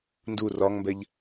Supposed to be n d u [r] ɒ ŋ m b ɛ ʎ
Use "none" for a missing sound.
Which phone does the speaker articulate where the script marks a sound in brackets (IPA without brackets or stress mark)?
r